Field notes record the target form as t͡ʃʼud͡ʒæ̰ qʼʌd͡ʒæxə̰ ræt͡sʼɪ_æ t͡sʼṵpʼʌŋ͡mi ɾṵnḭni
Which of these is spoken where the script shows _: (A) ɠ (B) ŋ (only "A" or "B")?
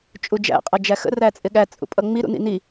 A